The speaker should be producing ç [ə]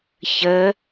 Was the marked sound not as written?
no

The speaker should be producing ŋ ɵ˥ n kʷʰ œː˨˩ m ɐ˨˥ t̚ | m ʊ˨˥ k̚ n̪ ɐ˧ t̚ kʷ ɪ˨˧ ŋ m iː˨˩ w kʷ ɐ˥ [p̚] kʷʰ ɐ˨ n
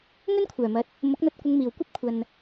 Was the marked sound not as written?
no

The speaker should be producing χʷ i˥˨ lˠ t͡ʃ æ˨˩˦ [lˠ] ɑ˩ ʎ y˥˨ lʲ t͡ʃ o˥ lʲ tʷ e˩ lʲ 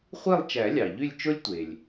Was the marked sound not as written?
yes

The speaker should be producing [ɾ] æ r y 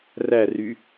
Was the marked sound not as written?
yes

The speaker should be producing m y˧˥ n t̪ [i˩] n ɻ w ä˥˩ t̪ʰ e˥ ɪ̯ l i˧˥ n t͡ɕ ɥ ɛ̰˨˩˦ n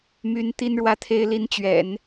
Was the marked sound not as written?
yes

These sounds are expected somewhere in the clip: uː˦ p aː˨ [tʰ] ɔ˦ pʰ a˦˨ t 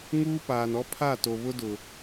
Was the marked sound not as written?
yes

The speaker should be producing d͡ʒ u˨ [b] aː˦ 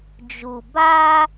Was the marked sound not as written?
no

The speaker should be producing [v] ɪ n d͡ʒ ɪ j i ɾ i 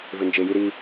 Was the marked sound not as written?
no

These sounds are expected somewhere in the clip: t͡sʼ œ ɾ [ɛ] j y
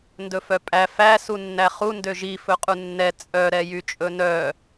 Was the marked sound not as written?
no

